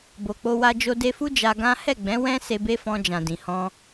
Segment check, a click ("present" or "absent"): absent